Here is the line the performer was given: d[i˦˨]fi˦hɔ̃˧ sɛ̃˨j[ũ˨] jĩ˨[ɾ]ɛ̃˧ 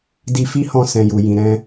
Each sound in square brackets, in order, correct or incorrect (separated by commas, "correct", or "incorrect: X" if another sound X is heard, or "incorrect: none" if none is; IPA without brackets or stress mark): incorrect: i˧, incorrect: u˨, correct